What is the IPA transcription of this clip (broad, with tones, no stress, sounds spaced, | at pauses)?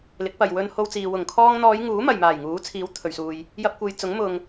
l ɪ˨˥ k̚ p ɐ˨ j w ɵ˧ n h o˧ w t͡s iː˨ w ʊ˨˩ ŋ kʰ ɔː˧ ŋ n̪ ɔː˨˧ j ŋ uː˨˥ m ɐ˨ j m aː˨˩ j ŋ uː˨˥ t͡sʰ iː˨˥ w t̪ʰ ɵ˨ ɥ s uː˨ j | j ɐ˧ p̚ kʷ e˨ j t͡s ʊ˨˥ ŋ m ʊ˨ ŋ